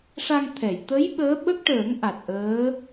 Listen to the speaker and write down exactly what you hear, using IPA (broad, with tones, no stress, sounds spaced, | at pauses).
ʂ a˧ ŋ t̪ʰ ɛ˨˩˨ j t̪ ə˧˥ j ɓ əː˧˥ ɓ ə˦˥ k̚ ʈ əː˨˩˦ ŋ ʔ a˨˩ t̚ ʔ əː˧˥